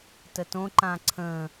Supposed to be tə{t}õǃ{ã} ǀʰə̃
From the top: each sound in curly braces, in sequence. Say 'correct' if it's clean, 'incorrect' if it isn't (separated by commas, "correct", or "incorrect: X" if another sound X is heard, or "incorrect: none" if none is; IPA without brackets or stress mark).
correct, correct